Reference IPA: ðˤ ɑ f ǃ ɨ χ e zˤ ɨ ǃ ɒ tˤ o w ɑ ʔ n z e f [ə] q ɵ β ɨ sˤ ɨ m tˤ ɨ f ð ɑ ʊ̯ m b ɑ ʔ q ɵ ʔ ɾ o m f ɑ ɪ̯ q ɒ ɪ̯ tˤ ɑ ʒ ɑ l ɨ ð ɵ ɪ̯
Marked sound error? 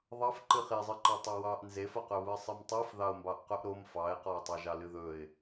no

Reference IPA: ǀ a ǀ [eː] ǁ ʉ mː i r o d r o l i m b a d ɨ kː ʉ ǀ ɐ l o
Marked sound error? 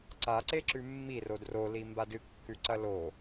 yes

